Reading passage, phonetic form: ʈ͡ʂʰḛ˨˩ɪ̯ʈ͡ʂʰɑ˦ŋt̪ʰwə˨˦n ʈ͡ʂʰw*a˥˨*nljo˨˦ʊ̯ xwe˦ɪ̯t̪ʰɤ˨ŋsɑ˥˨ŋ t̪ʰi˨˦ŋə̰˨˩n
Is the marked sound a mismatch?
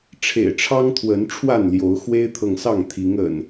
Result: no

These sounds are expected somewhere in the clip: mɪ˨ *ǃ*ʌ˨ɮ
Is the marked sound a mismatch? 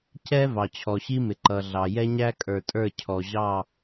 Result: no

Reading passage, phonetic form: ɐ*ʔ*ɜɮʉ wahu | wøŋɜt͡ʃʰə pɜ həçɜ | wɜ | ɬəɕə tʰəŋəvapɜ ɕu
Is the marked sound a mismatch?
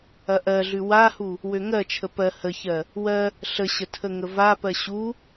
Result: no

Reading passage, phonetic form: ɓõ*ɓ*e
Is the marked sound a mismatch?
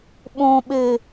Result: no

